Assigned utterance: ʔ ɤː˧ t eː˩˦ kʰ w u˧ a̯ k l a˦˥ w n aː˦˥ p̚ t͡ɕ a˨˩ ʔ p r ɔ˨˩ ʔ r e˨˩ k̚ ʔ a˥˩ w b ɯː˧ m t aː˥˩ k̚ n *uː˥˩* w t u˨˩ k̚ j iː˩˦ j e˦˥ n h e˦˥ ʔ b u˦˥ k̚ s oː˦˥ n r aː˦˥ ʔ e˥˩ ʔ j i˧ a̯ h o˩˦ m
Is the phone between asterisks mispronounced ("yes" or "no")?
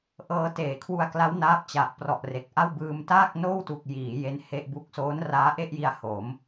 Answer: yes